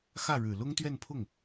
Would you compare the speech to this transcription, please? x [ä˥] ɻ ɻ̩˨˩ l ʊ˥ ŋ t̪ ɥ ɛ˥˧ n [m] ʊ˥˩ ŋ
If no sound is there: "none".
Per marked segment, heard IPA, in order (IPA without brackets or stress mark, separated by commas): ä˥˩, pʰ